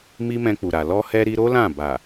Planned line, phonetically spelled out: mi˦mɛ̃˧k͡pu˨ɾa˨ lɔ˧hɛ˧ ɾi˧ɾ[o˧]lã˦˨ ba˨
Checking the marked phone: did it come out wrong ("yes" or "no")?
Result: yes